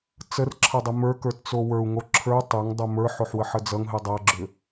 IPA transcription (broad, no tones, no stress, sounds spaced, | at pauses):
t͡s ə r ǁʰ ʌ dˤ ə m ə˞ k ə˞ t t͡s o w ə˞ u̯ ŋ o ǁʰ ə˞ tˤ ə˞ ŋ dˤ o m ə˞ ħ o ħ w ə ħ ə d͡z ʌ ŋ ɦ ɨ dˤ ʌ ɡ͡ǁ ʏ